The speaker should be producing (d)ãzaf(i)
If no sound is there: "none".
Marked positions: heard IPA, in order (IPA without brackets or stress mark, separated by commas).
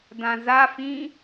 d, ĩ